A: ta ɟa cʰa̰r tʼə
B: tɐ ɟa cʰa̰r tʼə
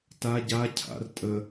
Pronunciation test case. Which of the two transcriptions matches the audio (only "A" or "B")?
A